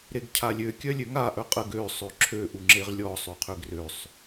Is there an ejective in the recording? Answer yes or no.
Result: yes